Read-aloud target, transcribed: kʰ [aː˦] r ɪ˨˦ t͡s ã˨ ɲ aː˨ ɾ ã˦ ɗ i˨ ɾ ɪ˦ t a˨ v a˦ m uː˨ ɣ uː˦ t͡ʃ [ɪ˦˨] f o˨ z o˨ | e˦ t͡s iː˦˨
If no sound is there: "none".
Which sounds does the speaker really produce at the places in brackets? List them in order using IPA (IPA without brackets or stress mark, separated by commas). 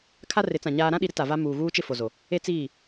a˦, ɪ˦˨